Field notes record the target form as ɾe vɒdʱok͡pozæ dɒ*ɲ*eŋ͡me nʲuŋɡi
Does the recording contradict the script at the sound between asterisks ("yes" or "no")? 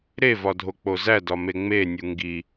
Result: yes